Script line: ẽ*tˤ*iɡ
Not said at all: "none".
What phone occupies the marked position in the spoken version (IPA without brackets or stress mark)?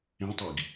tˤ